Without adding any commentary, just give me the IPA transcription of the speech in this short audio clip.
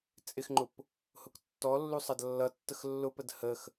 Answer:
t͡sʼ ɪ x ŋ͡ǃ ʊ p | h ʊ k tː ɔ lː u sˤ ʌ d lː ʌ tː ə x lː ʊ p ə d h ə x

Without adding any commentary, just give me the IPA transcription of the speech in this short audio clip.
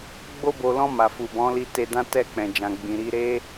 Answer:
ɡ͡b o˧ b o˨ l ɔ̃˧ m a˨ f u˨ b ɔ̃˨˦ l i˧ t e˧ d ã˦ t ɛ˦˨ k͡p ɛ̃˨ d͡ʒ ã˨ ɡ͡b ĩ˨ ɾ i˧ ɾ e˦

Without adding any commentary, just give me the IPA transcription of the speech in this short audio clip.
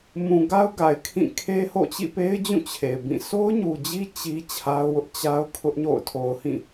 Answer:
m ũ˨ ɡ a˦ ʊ̯ ɡ a˨ ɪ̯ kʰ ĩ˦˨ kʰ e˦ h o̰˦˨ t͡ɕ ḭ˦˨ p e˦ ɪ̯ d͡ʑ ũ˦˨ t͡ɕʰ e˨ ɪ̯ b ĩ˦˨ sʰ o˦ ʊ̯ ɲ u˨ d͡ʑ i˦ t͡ɕ i˦ t͡ɕʰ a˦ ʊ̯ w ʊ˦ ʔ t͡ɕ a˦ ʊ̯ kʰ ʊ˦ ʔ ɲ o̰˦˨ ʊ̯ tʰ o˨ ʊ̯ h ĩ˦˨

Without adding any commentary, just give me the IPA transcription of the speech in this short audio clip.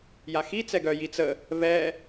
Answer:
j a x i t͡s ɛ ɡ œ j i t͡s ə | β ɛ

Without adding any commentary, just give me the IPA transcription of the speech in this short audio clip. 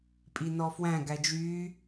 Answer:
pʼ i n ɔ f w æ̃ ɡ æ d͡ʒ yː

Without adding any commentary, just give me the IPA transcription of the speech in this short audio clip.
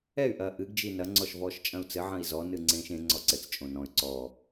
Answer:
ɛ y̯ ʔ ɐː ʔ ɨ ɡ d͡ʒ i n ɐ ŋ͡ǀ ɔ ʃ v ɔː ʃ t͡ʃʼ ɐ̃ u̯ t͡s ɘ ʕ ɐ̃ i̯ z ɔ n ɨ ŋ͡ǀ ẽː ʃ ẽ ŋ͡ǀ ɔ ǀ ɘ t͡s t͡ʃʼ õ n ɔ̃ y̯ ǀ ɔ

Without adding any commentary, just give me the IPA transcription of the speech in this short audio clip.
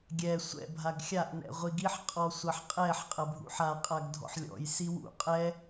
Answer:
ɡʲ ɛ sʷ ɛ̰ bʱ a ɡ xʲ a ʔ n ɛ̰ ʁʷ i ɡ i ħ qʼ ɔ sʷ ɐ ħ qʼ ɛ ħ qʼ ɐ bʱ ṵ ħ a qʼ a ɡ dʱ ɔ̰ ħ lʲ ɔ̰ j s i w ṵ qʼ ɛ

